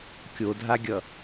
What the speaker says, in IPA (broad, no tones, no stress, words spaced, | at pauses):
kʲodʱaɡʲʌ